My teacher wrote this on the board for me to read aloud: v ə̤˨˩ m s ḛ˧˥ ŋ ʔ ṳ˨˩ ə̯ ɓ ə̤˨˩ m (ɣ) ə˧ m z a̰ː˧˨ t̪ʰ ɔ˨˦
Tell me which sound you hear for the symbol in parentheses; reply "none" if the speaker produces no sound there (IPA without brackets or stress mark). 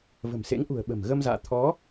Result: ɣ